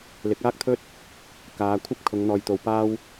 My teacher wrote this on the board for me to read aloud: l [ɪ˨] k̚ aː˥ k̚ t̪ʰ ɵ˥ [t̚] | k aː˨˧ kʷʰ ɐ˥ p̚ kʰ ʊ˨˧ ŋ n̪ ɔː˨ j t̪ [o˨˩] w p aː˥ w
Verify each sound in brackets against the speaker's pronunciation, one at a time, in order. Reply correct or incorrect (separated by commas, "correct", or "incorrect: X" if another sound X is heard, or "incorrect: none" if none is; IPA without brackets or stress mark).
incorrect: ɪ˨˥, correct, incorrect: o˨